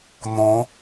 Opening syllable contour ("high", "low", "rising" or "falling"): rising